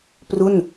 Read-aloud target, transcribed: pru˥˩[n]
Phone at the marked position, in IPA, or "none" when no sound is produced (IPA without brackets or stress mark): n